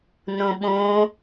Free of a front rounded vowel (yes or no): yes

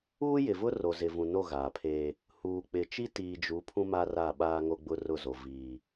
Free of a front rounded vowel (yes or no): yes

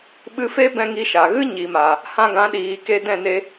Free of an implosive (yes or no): no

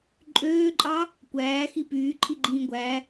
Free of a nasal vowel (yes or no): no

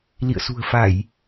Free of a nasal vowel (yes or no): yes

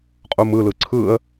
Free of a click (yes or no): no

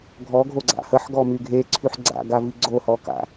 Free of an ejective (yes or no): yes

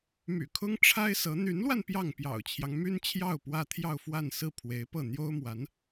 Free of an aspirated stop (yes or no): no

